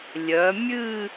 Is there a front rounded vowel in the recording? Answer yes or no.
yes